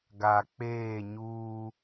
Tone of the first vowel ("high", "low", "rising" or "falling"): low